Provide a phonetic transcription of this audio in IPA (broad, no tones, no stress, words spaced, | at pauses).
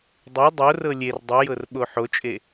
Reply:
dˤe dˤorɤ lʲer dˤɯjɤr ɓoħot͡ʃʼe